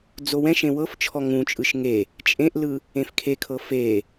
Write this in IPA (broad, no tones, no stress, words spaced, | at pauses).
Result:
d͡zowɛ̃ʃẽ wɤft͡ʃʰɔ ŋũt͡ʃʼɯʃ ŋe | t͡ʃʼẽʔlɯ | ẽfkʰekʰɤ fe